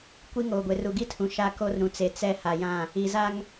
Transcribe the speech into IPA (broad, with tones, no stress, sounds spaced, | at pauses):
kʷ i˦ ŋ oː˨ ɡʷ e˨ r u˨ ɡ i˦ tʰ ũ˨ ʃ a˦ k o˦ r ɾ ũ˨ t͡s e˨ t͡s ɛ˦ h a˨ j ã˦˨ | i˨ z a˦ ŋ